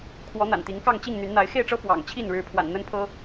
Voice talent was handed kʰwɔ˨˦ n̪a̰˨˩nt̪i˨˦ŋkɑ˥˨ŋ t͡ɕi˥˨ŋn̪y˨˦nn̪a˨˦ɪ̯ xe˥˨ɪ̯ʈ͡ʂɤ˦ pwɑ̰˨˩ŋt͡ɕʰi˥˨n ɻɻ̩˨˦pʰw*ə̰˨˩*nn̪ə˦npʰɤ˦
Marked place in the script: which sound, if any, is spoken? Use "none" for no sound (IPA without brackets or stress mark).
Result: a̰˨˩